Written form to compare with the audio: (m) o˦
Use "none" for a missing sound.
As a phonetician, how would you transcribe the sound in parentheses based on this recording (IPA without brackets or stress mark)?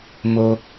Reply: m